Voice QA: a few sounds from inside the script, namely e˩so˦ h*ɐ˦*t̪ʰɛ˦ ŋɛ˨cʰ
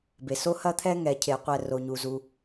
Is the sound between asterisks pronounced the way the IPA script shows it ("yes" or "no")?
yes